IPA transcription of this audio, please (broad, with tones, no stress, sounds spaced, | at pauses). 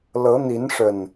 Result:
l ɤ˨˦ n̪ i˨˦ n ʂ ə˨˩ n